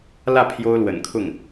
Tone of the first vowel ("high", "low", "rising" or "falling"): falling